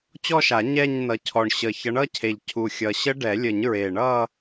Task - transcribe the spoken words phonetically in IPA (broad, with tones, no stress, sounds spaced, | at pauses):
t͡ɕ ɔ˥˧ ʃ a˨˩˦ ɲ ɛ˥˧ ɲ n ʌ˨˦ cʰ ɔ˨˩ ɳ ɕ ə˨˩ ç ʌ˨˦ ɳ ʌ˥˧ cʰ e˨˩ ʎ cʰ u˨˩ xʲ ʌ˨˩ ɕ ə˦˥ ɖ ɛ˨˩˦ lʲ ə˨˩˦ ɲ ɹ e˨˩ ɳ ʌ˥˧